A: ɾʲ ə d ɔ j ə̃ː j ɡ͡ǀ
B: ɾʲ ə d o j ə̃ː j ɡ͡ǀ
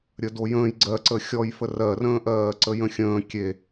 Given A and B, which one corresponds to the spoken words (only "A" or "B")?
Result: B